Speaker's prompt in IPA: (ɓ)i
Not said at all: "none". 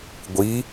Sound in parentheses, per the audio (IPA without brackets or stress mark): ɡʷ